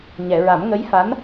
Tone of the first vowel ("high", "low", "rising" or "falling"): low